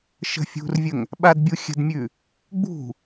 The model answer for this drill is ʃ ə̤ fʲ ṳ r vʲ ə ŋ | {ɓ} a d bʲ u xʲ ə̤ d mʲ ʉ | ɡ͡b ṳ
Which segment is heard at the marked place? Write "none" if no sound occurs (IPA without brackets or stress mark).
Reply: ɓ